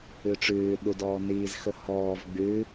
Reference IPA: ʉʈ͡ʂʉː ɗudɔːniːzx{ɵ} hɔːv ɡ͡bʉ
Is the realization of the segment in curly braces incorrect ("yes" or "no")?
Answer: no